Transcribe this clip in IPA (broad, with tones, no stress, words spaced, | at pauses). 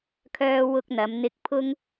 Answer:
kʰœː˥ wʊ˥k̚n̪ɐ˨˥m n̪ɪ˧k̚pʰʊ˥ŋ